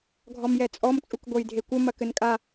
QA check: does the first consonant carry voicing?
yes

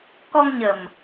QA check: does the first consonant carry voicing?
no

